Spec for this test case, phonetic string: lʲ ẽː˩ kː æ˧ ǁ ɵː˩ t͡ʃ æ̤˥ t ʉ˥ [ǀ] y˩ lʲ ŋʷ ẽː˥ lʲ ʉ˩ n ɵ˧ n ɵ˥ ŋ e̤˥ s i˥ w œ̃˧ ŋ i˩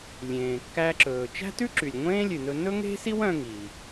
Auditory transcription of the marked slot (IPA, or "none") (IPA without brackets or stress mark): ǁ